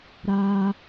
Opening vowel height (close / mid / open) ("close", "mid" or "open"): open